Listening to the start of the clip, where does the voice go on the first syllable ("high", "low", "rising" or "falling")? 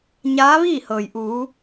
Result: rising